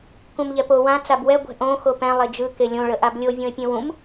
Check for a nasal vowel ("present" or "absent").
present